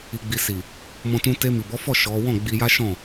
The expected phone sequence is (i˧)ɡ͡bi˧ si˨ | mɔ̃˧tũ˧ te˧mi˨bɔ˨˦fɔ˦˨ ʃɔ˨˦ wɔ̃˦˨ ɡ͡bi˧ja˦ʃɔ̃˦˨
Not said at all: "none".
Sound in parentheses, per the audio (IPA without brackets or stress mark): i˧